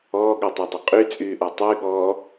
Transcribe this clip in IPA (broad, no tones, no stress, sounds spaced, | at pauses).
ɔː ɠ ɔ tˤ ɛ dˤ ø qʼ y t͡sʼ yː ʔ ɔ tˤ y ɠ ɔː